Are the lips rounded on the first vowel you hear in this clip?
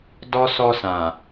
yes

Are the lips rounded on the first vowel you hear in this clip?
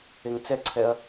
no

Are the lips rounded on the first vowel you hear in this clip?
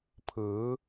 no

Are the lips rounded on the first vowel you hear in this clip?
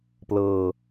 no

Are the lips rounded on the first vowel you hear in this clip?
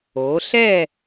yes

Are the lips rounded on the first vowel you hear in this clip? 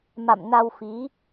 no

